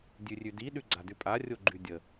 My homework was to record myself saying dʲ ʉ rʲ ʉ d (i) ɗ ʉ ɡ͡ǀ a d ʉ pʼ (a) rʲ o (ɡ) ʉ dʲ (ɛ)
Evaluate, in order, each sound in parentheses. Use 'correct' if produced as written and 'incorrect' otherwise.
correct, correct, incorrect: ɡ͡ǃ, incorrect: ə

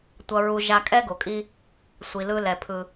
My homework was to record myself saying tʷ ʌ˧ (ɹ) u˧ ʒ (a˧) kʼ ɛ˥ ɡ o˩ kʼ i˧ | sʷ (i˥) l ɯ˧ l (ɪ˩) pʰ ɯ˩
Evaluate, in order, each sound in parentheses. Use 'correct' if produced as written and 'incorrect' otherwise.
correct, correct, incorrect: i˩, incorrect: ɛ˩

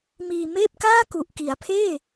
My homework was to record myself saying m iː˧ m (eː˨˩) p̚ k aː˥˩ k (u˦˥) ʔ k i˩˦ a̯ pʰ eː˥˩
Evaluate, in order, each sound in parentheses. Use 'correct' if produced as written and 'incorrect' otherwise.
incorrect: eː˥˩, incorrect: u˨˩

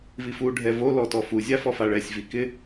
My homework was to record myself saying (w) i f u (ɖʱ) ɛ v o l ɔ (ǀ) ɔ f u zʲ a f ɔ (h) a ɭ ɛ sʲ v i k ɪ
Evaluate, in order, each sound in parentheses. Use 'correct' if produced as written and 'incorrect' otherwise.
incorrect: v, correct, incorrect: t, incorrect: f

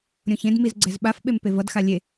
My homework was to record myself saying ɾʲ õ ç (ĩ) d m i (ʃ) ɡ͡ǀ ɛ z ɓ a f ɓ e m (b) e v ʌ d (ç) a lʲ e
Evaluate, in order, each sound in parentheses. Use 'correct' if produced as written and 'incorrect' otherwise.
incorrect: ẽ, incorrect: z, incorrect: p, incorrect: x

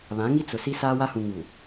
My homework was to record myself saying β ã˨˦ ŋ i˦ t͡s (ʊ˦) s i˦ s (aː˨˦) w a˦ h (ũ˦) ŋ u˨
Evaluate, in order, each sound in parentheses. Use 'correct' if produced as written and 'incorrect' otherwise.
incorrect: ʊ˨, incorrect: aː˦, incorrect: ũ˨

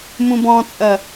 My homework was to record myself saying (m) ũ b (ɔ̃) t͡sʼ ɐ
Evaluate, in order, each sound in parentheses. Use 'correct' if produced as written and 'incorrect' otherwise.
correct, correct

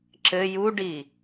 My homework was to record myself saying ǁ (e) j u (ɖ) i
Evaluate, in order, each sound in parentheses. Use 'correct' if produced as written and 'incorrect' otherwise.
incorrect: ɘ, correct

